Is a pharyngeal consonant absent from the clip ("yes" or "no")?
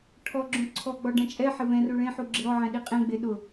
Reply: no